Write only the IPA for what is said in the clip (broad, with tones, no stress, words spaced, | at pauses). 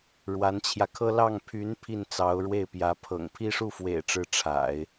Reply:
ɻwa˧˥nt͡ɕʰjä˧kʰɤ˥ lɑ˥˩ŋpʰy˧˥n pʰi˥˩nt͡sɑ˧˥ʊ̯ɻwe˥˩ɪ̯pjä˧˥ pʰɤ̰˨˩ŋ pʰi˥ʂu˥˩fwḛ˨˩ɪ̯ʈ͡ʂɻ̩˧˥ ʈ͡ʂʰa̰˨˩˦ɪ̯